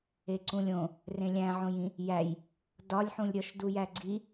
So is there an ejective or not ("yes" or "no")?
no